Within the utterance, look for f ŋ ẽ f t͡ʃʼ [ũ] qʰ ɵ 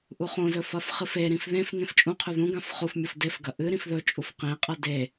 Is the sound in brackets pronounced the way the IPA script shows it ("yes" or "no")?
yes